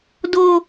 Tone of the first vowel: high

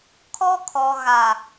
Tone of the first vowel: high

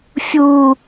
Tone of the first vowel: high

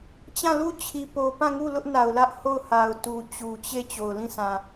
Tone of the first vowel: falling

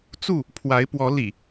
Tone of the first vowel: falling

